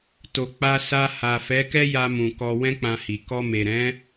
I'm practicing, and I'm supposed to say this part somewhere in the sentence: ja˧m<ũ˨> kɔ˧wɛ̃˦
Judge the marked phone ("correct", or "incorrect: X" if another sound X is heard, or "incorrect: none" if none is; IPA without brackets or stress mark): correct